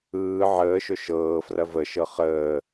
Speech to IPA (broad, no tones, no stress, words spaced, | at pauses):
ɯː ʕəːʃɵ ʃɤː frɐvəʃɤ χəː